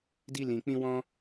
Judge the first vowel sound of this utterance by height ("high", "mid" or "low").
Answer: high